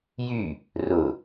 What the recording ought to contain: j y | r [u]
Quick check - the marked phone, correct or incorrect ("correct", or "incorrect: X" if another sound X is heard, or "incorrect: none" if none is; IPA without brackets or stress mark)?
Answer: incorrect: ʊ